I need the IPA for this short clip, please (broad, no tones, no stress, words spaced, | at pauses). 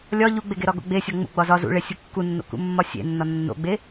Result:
lʲɒ ʎuɡ͡beɡeɾɒ ɡo̰ɡ͡besʲɒ ŋ͡mṵɡ͡bɒ zɒ zṵɭe sʲukːunːo̰ kṵmːɒsʲḛ nːɒnːo̰ɡ͡be